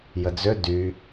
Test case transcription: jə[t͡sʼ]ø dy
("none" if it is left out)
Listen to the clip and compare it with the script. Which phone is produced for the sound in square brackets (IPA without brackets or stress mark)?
d͡z